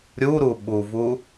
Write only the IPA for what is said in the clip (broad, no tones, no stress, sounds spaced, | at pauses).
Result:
ɾʲ u ɾ u ɓ u v u